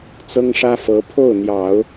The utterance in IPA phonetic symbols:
t͡s ɤ˥ ŋ ʂ ä˥ f ɤ˧˥ pʰ o˥˩ ʊ̯ n̪ j ɑ˨˩˦ ʊ̯

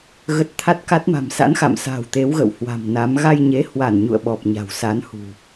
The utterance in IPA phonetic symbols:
ɣ ə˨˩ t̚ t̪ʰ a˦˥ t̚ k a˦˥ t̚ m a̤˨˩ m s a̰˧˥ n x a̰˧˨ m s a̤˨˩ w t̪ e˨˦ w ɣ ə̰˧˨ w h w a̤˨˩ m n a˨˦ m ɣ a˧ j ɲ e˨˦ h w a˧˩ n ɲ ṵ˧˨ ə̯ ɓ ɔ˨˩ p̚ ɲ a̤˨˩ w s a˨˦ n h ṳ˨˩

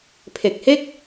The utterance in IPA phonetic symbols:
pʰ e˨˩ k̚ h e˥˩ k̚

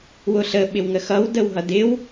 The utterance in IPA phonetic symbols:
w ʊ ɬ ə ɓ ɪ w ŋ ə x ʌ w d ə w ɦ ʌ d ɪ w

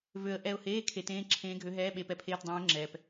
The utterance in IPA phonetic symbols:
v ø˧ ə̯ ʔ ɛ˧ ʊ̯ h eː˧˥˧ kʰ e˧˩˧ t ẽː˧˥˧ ǁʰ ẽː˧˥ ɡʱ ø˧˥ ɦ ɛː˧˥˧ ɓ e˧˩˧ p ɛ˧˥ pʰ eː˧˥˧ t dˤ ẽː˧˥ ə̯ ŋ͡ǁ ɛː˩ p

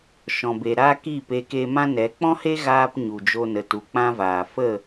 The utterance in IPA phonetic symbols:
ʃ ɔ̃˨ b e˨ ɾ aː˦ k iː˦˨ p eː˧ k e˧ m ã˦ n ɛ˨˦ k͡p ɔ̃˦ h e˦ ɣ aː˦ p ɲ u˨ d͡ʒ o˧ n ə˨ t u˨ k͡p ã˦ v aː˨ f ə˦˨

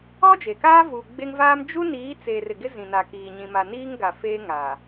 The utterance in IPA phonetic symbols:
ɔ˦ d͡ʒ e˨ k aː˦ v u˨ ɡ͡b e˦ ŋ v aː˦ m d͡ʒ u˦ n iː˨˦ t͡s eː˨ r ɪ˨ ɡ ɪ˦ z ĩ˨ n a˨ k iː˨ ɲ ĩ˨ m a˨ n iː˦ ŋ ɡ a˨ f eː˦ ŋ a˨

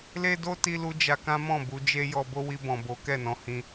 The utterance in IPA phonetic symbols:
l e˦ d o˦ t i˧ l u˧ d͡ʒ a˧ k ã˦ m ɔ̃˦˨ b u˧ d͡ʒ e˦ j ɔ˧ b o˦ w i˧ b ɔ̃˨ b o˨˦ k ɛ˦˨ n ɔ̃˨˦ h ĩ˧

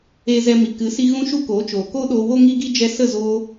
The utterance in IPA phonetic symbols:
eː˧ z ɛ˧ m i˨ k ɨ˨˦ s i˧ ɣ ũ˦ ʃ u˦ k oː˨˦ t͡ʃ oː˨ k o˦ ɗ oː˧ w o˦ ŋ i˦ ɡ i˦ d͡ʒ ɛ˧ s ə˦˨ z oː˧

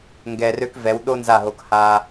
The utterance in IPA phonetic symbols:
ŋ ɡ ɛ˧ r ø˦ k v ɛ˨˦ w ɗ o˦ n z a˦˨ ɦ o˧ k h a˧

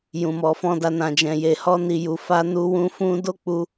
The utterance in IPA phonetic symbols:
j ũ˨ m ɔ˨ f ɔ̃˧ d a˧ n ã˨ d͡ʒ ɛ̃˨ j e˨ h ɔ˧ n i˨ j u˨ f a˧ n u˧ w ũ˧ f ũ˧ d o˦ k͡p u˧

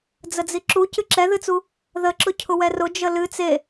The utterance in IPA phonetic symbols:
d͡z ə d͡z i ǁ u c ɨ ǁ ɛ ð ɨ t͡s u | ð ə ǁ ʊ cʰ ʊ w ɛ r ʊ d͡ʒ ə l ɨ t͡s e

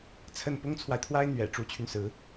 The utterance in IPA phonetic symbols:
t͡sʰ ə˥˩ n p ʊ˥ ŋ t͡sʰ w a˨ ɪ̯ t̪ʰ w a˥ ɪ̯ n̪ ɥ ɛ̰˨˩ ʈ͡ʂ u˧˥ t͡ɕʰ y˧ n s ɹ̩˧˥

